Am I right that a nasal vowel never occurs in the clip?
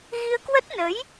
yes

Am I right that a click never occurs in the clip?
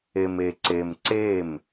no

